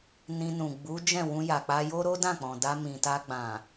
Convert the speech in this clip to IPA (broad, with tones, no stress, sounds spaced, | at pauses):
n ĩ˧ n ũ˨ ɡ͡b u˨˦ d͡ʒ ɛ̃˦˨ w ũ˧ j a˨ k͡p a˧ j o˦ ɾ o˦ d ã˦˨ k͡p ɔ̃˨ d a˧ m ĩ˨ t a˧ ɡ͡b ã˨